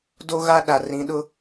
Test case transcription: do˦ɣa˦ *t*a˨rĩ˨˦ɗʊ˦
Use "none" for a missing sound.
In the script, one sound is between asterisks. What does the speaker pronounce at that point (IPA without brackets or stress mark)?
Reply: ɗ